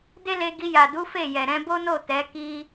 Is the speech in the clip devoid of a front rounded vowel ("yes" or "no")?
yes